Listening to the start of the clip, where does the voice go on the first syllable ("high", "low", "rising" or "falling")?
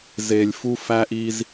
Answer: low